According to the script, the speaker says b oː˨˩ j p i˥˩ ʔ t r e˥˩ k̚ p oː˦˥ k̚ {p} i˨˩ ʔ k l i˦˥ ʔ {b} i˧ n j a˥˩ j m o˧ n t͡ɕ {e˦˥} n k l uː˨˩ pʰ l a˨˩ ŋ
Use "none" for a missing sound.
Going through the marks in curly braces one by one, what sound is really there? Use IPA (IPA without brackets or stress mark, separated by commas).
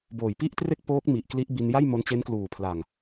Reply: m, b, e˦˥